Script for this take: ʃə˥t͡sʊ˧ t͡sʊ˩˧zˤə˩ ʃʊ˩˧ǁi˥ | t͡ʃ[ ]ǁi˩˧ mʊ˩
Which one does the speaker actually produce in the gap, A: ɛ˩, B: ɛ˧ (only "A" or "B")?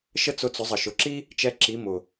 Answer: B